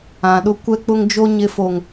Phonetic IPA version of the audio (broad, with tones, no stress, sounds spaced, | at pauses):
ã˨ ɗ ʊ˦ kʷ ɛ˦ k͡p ʊ˦ ŋ d͡ʒ o˦ ɲ ɪ˦ f o˨ ŋ